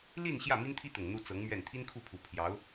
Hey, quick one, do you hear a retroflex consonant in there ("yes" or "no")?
no